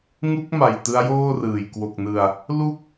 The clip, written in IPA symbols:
ŋ u˦˥ k̚ m a˨˩ j t ɯ˦˥ a̯ j oː˥˩ r ɯː˨˩ j k w o˨˩ k̚ n ɯ˨˩ a̯ | l u˥˩ k̚

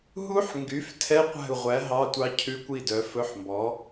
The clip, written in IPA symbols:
ɦ u˦˥ ħ ŋ ɡ y˩˥ f tʰ ɛ˧˥˧ qʷ æ̤˥˩ u̯ ʁʷ æ˩˥ ɦ ɑ˧˥˧ tʷ ɑ˦˥ cʰ ʉ˧˥˧ kʷ i˥˩ d œ˩˥ f ɵ˧˥˧ ħ m b ɔ˩˥

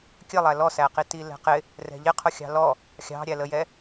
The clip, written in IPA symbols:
kʲ ə lˠ æ l ɔ s æ q i t i l ɛ̤ q ɪ | r ɛ̤ ʎ ɪ qʰ ʊ xʲ ɑ̤ l ɔ | xʲ ɑ̤ ɾʲ æ l ə j ɛ

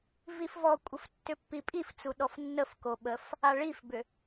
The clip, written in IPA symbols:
v i f v ɔ kʷʼ ə f tː ʏ pː i pʼ i f t͡s u ɗ ɔ f nː ə f k o ɓ ə f | a ɭ i f b ʏ

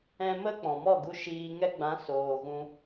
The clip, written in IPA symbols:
ɛ̃˧ m ə˦ k͡p ɔ̃˨ m ɔ˦˨ ɡ u˧ ʃ iː˧ ŋ ɛ˧ ɡ͡b ã˨˦ s oː˨ ɣ ũ˧

